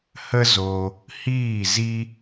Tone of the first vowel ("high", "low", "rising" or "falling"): high